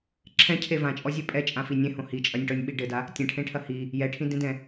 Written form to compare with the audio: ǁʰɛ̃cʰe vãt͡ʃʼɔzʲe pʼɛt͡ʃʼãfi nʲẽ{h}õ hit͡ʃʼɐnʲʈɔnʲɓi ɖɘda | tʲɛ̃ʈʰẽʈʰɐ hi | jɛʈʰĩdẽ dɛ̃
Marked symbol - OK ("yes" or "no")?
yes